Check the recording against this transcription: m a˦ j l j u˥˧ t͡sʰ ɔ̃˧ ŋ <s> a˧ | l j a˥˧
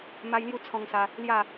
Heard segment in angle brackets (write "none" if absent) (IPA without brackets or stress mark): s